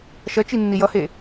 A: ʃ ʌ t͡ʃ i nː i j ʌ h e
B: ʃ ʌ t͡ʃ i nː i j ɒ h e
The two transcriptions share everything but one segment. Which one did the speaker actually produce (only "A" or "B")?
A